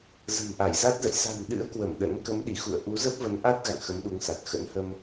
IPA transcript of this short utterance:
zə̤˨˩mʔa˧˩jza˦˥t̚zə̰˧˨j sa̤˨˩nɗɨ̰˧˥ə̯ kwə˧˩m ɗə̰˧˥n kə˨˦mɗi˧˩xṵ˧˨ə̯ʔu˨˦ zə˦˥p̚və˨˦nʔa˦˥t̚ɣa̰˧˨ŋ xə˨˦mɗu˨˦ŋsa˨˩t̚ xə̰˧˥n hə˧m

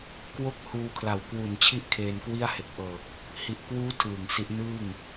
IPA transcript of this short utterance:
kwo˦˥k̚ huː˧kʰla˨˩wkwu˨˩n t͡ɕʰi˥˩ʔkʰeː˧nkwi˥˩a̯ he˨˩k̚ʔɤː˨˩k̚ | hi˨˩ʔkwuː˦˥ tʰɯː˨˩ŋsi˦˥ʔ nɯː˥˩ŋ

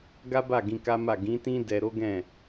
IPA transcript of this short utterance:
ɡa˦ba˦˨ ɡĩ˧ka˦ma˦˨ ɡĩ˨˦tĩ˦ dɛ˧ ɾo˦ɡɛ̃˦˨

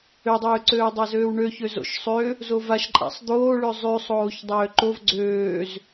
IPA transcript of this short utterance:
ødˤøːǀøːdˤa zøːwɳøçø zo̰ʃsˤø | zovaʃǃʼa̰sˤ d̪oːɭø zˤʉsˤoːç dˤøːǃov ɡ͡ǀøːz

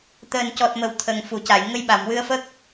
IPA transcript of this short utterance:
t̪əː˨˩ncɔ˨˩t̚mə˨˩w t̪ʰə˨˩ŋfu˨˩˨ca˨˩˨j ŋə˧jɓa˨˩˨mwɨ˧ə̯fə˦˥k̚

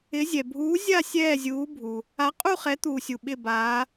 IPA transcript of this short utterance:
ɪ˨˦zʲɛ˩ bʱuː˨˦ zʲa˦˨ sʲɛː˦˨zʲuː˨˦bʱu˩ | a˨˦qʼu˦˨χɛ˨˦ t̪uː˩sʲu˩ ɓɪ˦˨baː˨˦

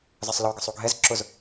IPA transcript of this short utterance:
zɜsˤlɔɡə sˤuɡʱɛz ǁʊz

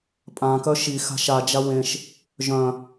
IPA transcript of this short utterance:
pʼãkœ ʃi xa̤ʃad͡ʒa wẽʃ | ʒœ̃

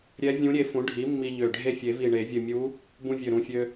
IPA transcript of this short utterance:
ɾʲɛ˧˥vʲũ˧˥ɾʲe˧ fũ˩˥ɖʱi˩˥ mːi˧ʎø˨˩ɖʱe˥˩ fʲe˨˩˦vi˨˩ɳe˨˩˦ vʲɨ˨˩mʲu˧˥ | bũ˧vʲø˨˩ɾũ˨˩fʲø˧

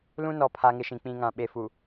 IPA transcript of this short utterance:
lũ˦nɔ˨ pʰa˨ŋɪ˨ʃĩ˨ k͡pĩ˨ŋã˨ɓe˨fu˨

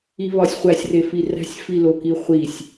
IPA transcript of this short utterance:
iβɒsʲχʷæsʲ refiræ̤sʲ filokiχʷisʲ

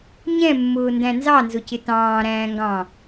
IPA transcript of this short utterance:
ɲɛ̃mːʊːndæ̃ nzɑnzʊcɪ tɑ̃ːɾæ̃ːŋɡɑ̃

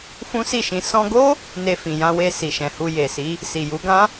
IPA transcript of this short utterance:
fũ˦si˦˨ʃĩ˧ sɔ̃˧ɡo˦ | ne˧fĩ˨jã˧we˧ si˨ʃɛ̃˨hu˧ je˨si˨˦ | si˨ju˨˦ ɡã˦

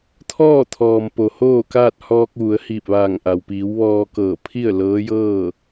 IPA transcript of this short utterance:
t̪ʰɔː˥˨t̪ʰɔː˩m po˩hoː˥˨kaː˥˨t̚ hɔː˧k̚ ʋu˩˧ə̯hiː˧˩p̚ʋaː˧˩ŋʔa˩w piː˩˧wʋɔː˧kɤː˧˩ pʰi˥˨ə̯lɤː˧˥jɤː˥˨

